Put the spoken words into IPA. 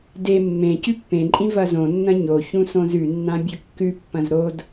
d e mː ẽ c ʉ pː ẽ ǃʼ ĩ v ɐ z õ nː ɐ̃ ɲ o ç ũ s õ z ʉ nː ã bʲ ɵ kː ʉ pː ɐ̃ z ɾ o d

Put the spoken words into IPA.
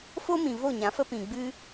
f o˦ m ĩ˨ v o˦˨ ɲ ã˨˦ f ə˦ p ĩ˨ ɡ͡b ɨ˦

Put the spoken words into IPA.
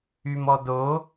y m ɔ d o

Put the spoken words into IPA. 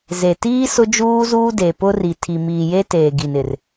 z e˨ t iː˦ s ʊ˦ d͡ʒ uː˦ z uː˦ d e˨ p ʊ˦ r i˨ tʰ i˨ m iː˨ j e˦ t eː˨ ɡ i˨ n ɪ˨ r

